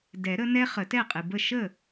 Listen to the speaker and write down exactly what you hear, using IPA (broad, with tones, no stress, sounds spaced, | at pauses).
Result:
d ɛ˨˩˦ ɾ ə˨˦ n ɛ˦ χ ə˨˩˦ t ɛ˥˩ qʼ ɨ˨ b ə˥˩ ʃ ə˥˩